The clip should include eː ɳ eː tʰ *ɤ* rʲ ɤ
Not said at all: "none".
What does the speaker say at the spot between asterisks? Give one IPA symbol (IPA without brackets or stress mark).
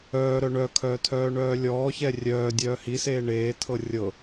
ɤ